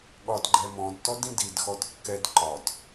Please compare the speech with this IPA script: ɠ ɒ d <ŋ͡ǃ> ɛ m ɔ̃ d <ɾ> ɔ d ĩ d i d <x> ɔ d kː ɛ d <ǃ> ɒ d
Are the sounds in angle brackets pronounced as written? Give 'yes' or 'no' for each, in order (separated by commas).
no, no, yes, yes